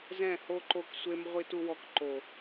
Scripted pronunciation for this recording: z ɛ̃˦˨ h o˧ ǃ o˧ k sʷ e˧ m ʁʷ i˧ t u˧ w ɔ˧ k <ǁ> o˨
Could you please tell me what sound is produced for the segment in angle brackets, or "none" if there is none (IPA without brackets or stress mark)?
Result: ǃ